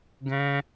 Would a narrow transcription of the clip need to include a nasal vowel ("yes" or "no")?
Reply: yes